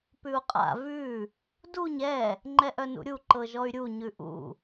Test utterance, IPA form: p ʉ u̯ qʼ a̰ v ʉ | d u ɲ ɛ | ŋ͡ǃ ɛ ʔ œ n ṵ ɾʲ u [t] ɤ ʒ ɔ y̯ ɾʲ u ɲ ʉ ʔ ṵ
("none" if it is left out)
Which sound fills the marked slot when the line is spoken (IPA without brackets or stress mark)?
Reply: ǃ